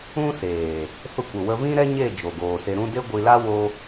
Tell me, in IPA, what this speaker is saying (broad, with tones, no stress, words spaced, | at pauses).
ũ˦seː˨ | fə˧kʷə˨ wə˧vĩ˦ɾɛ˦ ɲe˦˨ d͡ʒo˨ɡoː˨se˧ɾũ˦ de˦ɡʷi˧la˦ wo˧